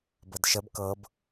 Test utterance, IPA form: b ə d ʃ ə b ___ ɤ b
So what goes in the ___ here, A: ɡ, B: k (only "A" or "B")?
B